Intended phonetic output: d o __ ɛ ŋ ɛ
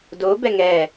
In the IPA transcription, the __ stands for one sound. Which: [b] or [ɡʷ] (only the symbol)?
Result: b